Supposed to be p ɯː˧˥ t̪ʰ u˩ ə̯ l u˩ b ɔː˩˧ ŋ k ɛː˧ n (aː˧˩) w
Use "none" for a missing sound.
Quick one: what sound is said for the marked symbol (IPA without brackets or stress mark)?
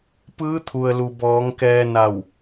a˧˩